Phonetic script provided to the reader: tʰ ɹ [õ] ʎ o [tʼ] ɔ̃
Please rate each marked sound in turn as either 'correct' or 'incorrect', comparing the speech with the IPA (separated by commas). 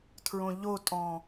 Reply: correct, correct